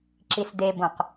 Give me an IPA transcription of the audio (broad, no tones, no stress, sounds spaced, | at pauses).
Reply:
ǁ i s d̪ e b õ q